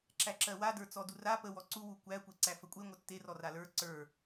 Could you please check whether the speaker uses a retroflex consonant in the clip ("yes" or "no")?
no